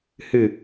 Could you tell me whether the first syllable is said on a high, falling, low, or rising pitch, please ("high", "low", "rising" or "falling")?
low